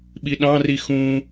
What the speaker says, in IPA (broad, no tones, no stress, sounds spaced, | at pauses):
ɓ i ɗ ɑ̃ r i x ũ